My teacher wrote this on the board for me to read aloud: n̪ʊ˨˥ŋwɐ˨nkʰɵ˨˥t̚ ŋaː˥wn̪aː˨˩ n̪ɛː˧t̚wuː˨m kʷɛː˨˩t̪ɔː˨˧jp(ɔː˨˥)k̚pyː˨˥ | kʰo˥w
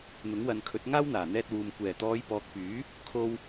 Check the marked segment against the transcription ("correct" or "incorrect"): incorrect